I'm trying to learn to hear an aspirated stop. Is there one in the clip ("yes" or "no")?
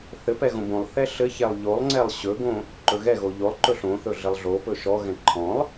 yes